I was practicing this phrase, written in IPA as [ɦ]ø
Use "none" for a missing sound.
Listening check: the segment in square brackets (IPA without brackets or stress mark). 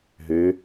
ɦ